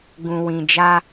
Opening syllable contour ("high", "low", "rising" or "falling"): low